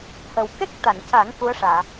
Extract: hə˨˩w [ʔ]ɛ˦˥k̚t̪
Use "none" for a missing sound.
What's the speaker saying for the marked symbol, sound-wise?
k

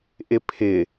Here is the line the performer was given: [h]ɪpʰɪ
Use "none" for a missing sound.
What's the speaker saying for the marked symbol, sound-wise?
ʔ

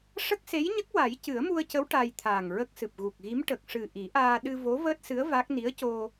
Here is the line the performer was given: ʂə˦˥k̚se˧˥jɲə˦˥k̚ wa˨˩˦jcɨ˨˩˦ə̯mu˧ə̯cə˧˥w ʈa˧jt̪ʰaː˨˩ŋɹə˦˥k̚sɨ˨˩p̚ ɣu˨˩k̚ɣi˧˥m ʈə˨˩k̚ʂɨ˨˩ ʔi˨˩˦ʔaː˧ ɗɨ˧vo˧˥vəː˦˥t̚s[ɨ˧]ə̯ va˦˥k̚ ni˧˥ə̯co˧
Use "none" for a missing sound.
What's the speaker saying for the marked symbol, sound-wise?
ɨ˧˥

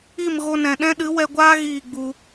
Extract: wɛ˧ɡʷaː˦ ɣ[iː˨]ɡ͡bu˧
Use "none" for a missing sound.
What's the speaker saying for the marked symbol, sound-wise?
iː˦˨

